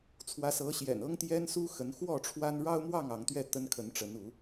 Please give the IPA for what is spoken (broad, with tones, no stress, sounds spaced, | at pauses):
t͡sʰ w ä˨˦ s ɤ˨˦ ɕ j ɛ̰˨˩ n ɤ˦ ŋ t̪ j ɛ˦ n s u˦ x ə˨˦ n x w ɔ˥˨ ʈ͡ʂʰ w a˦ n ɻ ɑ˦ ʊ̯ m w ɑ˥˨ ŋ ɑ˨˦ ŋ t̪ ɥ ɛ˥˨ t̪ ə˦ n kʰ ə˨˦ n ʈ͡ʂ ə˨˦ n u˨˦